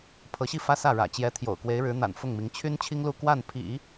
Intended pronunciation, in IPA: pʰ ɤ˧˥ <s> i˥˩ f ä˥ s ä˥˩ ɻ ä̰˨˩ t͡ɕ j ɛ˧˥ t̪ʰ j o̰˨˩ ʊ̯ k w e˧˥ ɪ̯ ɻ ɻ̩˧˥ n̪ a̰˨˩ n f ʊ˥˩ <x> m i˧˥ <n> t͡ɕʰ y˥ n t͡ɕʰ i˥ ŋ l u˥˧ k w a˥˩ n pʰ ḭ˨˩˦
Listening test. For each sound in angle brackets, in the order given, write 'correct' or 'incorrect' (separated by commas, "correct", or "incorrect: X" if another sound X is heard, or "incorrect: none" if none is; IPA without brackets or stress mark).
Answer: incorrect: ɕ, incorrect: ŋ, incorrect: ŋ